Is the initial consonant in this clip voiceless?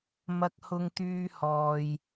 no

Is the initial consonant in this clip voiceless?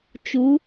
yes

